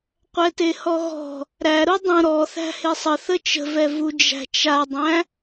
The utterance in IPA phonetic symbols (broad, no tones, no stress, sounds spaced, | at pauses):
qʷ ɛ t e h ɔ ɣ ɔ̤ | ɾ æ ɾ u dˤ ũ ɾ ɔ θ æ̤ h e sˤ ə θ ə t͡ʃ ə̤ v ɛ v u d͡ʒ æ̤ t͡ʃ a dˤ æ̃